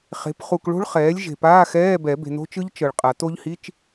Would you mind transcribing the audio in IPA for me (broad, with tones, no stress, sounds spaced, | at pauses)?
χ e̤˩˥ p χ u˨ k ɭ o̤˦˥ ɭ χ ɛː˩˥ lʲ ʒ e̤˨ p aː˧˥˧ x ɛː˧˥˧ b ɛ˨˩˦ b e̤˨ n o̤˦˥ t͡ʃ ɯ˦˥ ʎ t͡ʃ ɤ˨ ɭ qʼ a˨˩˦ t o˦˥ ʎ h i˧˥˧ t͡ʃ